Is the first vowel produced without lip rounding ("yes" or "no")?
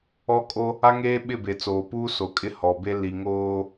no